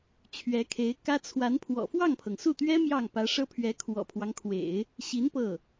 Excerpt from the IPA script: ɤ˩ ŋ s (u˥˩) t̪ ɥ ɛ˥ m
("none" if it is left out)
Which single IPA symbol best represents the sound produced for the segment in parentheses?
u˥˩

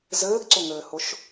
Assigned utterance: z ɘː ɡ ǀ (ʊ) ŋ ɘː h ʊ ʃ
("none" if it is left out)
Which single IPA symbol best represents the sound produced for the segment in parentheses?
ʊ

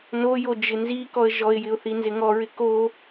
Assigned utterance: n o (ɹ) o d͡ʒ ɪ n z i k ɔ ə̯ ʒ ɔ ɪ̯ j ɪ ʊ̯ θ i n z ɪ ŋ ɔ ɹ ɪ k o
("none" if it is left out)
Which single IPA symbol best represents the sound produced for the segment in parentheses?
j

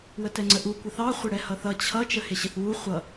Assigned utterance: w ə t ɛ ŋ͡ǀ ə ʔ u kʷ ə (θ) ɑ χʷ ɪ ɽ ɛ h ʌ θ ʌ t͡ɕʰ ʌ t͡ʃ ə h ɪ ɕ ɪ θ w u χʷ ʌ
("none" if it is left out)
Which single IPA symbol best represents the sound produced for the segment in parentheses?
θ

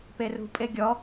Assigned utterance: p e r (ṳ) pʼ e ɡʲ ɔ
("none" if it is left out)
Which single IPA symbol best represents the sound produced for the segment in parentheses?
ṳ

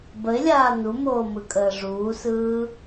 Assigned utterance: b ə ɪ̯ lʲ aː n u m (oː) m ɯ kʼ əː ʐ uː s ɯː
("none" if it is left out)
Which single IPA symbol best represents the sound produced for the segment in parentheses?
oː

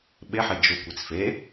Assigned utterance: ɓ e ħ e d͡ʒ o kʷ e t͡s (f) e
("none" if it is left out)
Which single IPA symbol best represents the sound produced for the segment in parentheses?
f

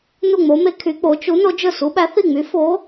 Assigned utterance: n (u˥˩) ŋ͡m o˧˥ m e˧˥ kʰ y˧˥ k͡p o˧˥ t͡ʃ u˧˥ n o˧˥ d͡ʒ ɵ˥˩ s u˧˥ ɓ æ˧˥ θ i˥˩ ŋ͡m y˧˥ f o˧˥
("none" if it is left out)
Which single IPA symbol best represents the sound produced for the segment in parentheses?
u˥˩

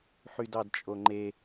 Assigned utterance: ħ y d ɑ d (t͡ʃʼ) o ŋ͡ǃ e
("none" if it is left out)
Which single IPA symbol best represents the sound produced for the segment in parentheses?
t͡ʃʼ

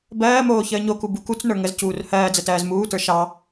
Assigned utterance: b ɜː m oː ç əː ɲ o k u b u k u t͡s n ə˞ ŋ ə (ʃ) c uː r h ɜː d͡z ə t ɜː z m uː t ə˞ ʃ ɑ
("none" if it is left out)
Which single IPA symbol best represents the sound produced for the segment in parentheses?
z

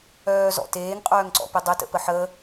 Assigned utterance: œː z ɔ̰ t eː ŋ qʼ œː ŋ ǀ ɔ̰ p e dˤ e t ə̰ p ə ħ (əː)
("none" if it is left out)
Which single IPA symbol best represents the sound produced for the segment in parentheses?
əː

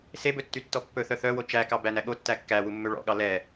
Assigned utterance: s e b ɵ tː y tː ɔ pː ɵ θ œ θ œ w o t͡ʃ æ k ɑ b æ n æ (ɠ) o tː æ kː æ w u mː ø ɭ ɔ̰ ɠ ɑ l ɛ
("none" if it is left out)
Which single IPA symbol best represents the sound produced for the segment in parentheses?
ɠ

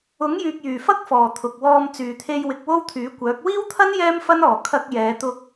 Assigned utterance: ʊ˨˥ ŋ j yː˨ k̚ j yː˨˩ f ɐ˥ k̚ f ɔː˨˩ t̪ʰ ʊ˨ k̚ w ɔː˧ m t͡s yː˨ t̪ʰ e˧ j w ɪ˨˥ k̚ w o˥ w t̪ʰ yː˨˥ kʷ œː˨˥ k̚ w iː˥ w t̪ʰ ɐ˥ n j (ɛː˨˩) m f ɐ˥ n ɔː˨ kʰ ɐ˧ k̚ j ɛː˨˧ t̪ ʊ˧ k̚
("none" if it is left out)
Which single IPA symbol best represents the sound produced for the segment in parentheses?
ɛː˥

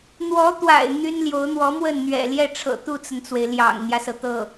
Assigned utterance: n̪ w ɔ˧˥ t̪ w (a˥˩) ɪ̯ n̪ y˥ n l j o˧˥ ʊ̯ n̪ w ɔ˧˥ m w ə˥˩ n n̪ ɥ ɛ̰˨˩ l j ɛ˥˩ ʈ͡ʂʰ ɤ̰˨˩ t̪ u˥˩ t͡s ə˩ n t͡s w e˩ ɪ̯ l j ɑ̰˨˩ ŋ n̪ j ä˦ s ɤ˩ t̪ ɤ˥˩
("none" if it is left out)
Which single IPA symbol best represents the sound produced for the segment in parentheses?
a̰˨˩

